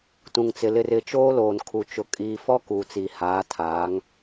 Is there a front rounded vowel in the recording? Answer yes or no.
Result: no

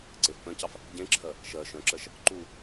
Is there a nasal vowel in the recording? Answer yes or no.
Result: yes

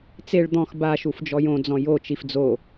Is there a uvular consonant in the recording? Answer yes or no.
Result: no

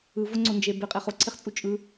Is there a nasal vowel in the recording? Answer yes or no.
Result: no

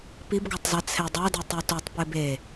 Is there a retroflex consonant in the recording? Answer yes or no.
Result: no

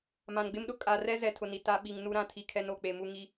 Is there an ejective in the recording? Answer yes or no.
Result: yes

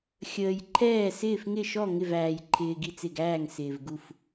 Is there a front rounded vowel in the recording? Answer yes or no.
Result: no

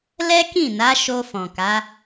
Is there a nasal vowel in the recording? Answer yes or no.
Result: yes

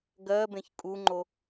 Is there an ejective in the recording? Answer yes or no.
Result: yes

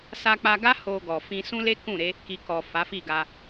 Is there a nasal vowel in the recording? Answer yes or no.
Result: yes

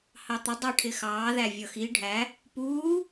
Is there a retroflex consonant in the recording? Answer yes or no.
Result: yes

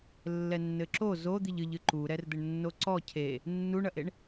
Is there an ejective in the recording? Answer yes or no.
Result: no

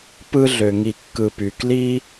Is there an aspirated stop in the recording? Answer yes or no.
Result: no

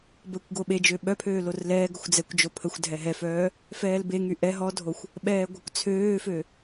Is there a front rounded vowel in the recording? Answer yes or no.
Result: yes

